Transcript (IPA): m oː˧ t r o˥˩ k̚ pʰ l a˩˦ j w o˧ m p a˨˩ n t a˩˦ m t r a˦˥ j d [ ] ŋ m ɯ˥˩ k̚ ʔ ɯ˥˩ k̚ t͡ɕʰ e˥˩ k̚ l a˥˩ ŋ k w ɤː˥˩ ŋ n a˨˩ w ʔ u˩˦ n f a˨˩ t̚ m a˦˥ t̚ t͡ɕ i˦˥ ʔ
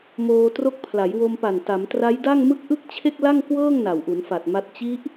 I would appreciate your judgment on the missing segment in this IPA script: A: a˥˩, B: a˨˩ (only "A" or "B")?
A